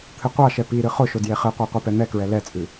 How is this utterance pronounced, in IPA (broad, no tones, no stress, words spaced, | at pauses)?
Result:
t̪ʰɨqʷɑʃɛ pi ɾɨχʊʃʊ djeχɨqʷɑ qʷɛpɛn̪ɛkɹɛ lɛt͡sʼɨ